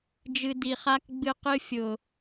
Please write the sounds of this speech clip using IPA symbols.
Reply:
d͡ʒ ɨ˨ d i˨ χ a˦ k ɡ͡b ɨ˦ q ɨ˦ fʲ ʊ˨

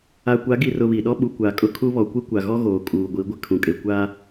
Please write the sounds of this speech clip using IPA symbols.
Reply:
a˨ kʷ a˨˦ ɡ i˨ r ʊ˨ β i˨ ɗ ɔ˦ ɓ u˨ kʷ a˨ kʼ ʊ˦ kʰ u˦ β ɔ˨ kʷ i˦ kʷ a˨ ɣ ɔ˦ ɣ oː˨ kʼ uː˨ ɡʷ i˨˦ ɡʷ ɪ˨ kʰ ũ˨ kʼ e˨ kʷ a˦

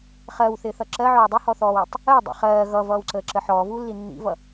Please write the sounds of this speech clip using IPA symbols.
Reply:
χ ɜ w θ ɪː θ ʌ ǁ ɜ ʕ ɔː dˤ ɪ h ɔ θ ɔː w ə tˤ | əː dˤ ḭ χ ɜː ɣ ʌ v ʌː w ǀ əː ǁ ə ħ ɔː v uː lː i nː ḭ v ʌ

